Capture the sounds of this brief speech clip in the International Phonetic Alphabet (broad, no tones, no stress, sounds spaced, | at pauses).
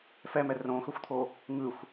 f ɛ m ɛ r õ x ɵ xʷ t̪ʰ o | ŋ ɯ xʷ